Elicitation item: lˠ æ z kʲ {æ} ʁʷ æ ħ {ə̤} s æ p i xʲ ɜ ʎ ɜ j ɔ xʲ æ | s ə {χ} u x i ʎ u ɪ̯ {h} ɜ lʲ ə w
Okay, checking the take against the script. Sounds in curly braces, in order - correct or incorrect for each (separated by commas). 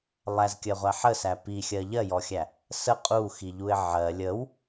incorrect, incorrect, incorrect, incorrect